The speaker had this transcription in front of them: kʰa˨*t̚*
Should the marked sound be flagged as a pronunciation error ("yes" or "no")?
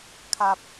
yes